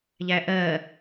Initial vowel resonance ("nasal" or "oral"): oral